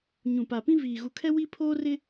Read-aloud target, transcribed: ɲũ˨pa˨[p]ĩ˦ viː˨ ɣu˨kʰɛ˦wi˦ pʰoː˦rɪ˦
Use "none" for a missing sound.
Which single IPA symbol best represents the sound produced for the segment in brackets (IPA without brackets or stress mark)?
p